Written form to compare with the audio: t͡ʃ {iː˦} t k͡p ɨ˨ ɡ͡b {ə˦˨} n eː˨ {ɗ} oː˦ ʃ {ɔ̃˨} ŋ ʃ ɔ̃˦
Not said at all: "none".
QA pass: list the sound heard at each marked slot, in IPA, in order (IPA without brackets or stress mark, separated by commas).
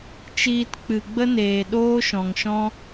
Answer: iː˧, ə˦, ɗ, ɔ̃˨